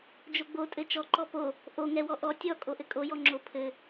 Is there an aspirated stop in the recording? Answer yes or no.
yes